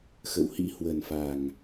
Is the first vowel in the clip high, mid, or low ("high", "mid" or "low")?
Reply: mid